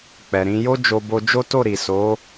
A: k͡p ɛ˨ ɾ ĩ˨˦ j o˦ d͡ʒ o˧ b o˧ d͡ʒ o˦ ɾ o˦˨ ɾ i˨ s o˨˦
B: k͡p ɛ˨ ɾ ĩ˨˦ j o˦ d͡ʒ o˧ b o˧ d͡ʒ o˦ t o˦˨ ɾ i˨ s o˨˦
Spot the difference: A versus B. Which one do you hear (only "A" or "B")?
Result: B